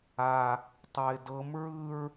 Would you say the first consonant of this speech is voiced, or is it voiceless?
voiceless